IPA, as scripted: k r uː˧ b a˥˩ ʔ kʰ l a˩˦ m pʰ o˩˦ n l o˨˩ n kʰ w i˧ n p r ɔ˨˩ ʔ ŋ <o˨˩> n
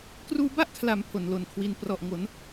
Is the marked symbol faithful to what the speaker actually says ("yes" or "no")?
no